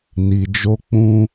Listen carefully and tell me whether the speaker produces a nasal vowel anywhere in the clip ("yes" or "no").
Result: yes